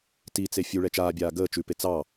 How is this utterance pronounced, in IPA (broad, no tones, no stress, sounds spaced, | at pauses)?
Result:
t i t͡s e fʲ u ɭ ɛ t͡ʃ aː bʲ aː ɡ əː t͡ʃ ʉ p e t͡s ɑ